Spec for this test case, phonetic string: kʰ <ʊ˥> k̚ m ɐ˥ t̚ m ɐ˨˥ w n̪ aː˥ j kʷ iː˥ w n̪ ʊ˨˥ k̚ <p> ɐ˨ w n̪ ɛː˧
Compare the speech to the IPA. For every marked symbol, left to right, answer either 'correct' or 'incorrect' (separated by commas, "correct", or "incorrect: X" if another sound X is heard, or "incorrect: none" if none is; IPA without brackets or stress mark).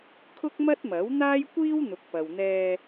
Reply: correct, correct